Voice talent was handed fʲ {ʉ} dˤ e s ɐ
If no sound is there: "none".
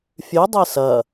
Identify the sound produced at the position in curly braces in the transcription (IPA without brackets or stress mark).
ʉ